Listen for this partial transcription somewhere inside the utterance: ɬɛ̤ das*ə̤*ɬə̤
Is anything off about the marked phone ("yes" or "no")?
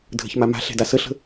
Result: yes